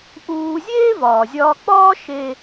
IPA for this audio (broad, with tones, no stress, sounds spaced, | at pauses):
ʔ uː˧ zʲ eː˥ v ɒː˩ zʲ ɒː˧ k͡p ɒː˥ ʃ e˧